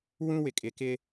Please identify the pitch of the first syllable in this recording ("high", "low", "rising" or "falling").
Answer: high